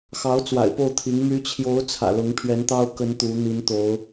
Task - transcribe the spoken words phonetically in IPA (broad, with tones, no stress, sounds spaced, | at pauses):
x ɑ˧˥ ʊ̯ t͡s w a̰˨˩ ɪ̯ p o˥˩ ʊ̯ t̪ʰ i˧˥ ŋ m y˧˥ t͡ɕʰ j o˧˥ ʊ̯ t͡sʰ ä̰˨˩ l ʊ˧˥ ŋ pʰ ɥ ɛ˧˥ n t̪ ɑ˥ ʊ̯ k ə˥ n t̪ u˧˥ n̪ i˧˥ n t̪ o˧˥ ʊ̯